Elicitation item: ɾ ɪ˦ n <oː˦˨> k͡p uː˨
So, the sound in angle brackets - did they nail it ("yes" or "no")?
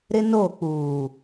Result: yes